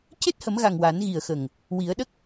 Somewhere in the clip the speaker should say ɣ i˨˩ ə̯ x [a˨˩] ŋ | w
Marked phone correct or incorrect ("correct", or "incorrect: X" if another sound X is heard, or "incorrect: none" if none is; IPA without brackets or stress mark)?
incorrect: ə˨˩